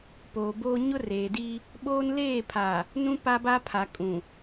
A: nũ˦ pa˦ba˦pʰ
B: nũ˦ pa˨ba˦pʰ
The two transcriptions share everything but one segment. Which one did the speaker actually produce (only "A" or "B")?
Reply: A